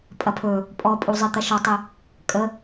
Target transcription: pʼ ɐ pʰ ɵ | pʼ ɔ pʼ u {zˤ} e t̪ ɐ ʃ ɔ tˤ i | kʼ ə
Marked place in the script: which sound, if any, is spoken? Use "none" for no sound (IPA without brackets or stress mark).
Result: zˤ